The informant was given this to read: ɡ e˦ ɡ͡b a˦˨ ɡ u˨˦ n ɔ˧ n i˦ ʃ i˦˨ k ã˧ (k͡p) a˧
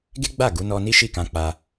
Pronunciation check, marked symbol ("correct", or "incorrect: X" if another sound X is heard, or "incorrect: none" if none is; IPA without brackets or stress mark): correct